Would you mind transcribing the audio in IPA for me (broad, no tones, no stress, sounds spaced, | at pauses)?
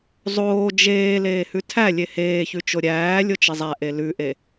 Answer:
zˤ oː d͡ʒ eː l eː h ʉ tʰ æ lʲ e h eː ç ʉ t͡ʃ o ɾʲ æː lʲ o t͡ʃ ɪ zˤ æ ʔ e l ʉ ʔ e